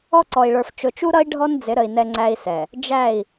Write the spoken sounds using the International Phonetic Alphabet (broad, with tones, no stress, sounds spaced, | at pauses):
ɔ˦ ǀ ɔ˨ i̯ ɭ ə˞˨ f t͡ʃ ʊ˨ t͡ʃ u˦ ɾ ʌ˦ i̯ ɖʱ ɔ˦ n d͡z ɪ˨˦ ɾ ə˨ i̯ n ɛ˦ ŋ͡ǀ æ˦ i̯ s ɛ˨ | d͡ʒ æ˦˨ i̯